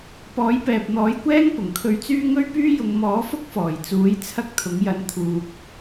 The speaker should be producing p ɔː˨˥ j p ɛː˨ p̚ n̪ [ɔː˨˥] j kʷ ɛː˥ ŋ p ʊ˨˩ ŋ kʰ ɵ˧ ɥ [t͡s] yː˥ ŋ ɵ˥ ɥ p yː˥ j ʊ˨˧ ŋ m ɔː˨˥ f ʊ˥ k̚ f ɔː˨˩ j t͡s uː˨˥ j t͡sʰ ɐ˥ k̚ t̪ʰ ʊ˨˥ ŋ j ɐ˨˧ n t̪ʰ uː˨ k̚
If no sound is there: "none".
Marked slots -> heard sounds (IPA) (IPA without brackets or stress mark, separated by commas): ɔː˨˥, t͡s